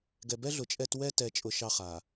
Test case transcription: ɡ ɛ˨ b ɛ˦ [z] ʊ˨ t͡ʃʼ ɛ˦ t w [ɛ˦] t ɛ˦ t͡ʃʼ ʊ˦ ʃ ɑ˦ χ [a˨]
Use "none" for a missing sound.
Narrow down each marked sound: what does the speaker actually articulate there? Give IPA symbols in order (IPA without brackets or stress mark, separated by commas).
ɮ, ɛ˦, a˨